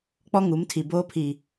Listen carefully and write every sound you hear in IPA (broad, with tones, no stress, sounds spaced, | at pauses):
k͡p ɔ˦ ŋ u˨˦ m tʰ i˨ b oː˦ pʰ i˨